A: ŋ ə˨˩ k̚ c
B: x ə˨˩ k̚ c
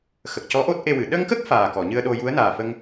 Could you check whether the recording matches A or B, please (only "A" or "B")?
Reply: B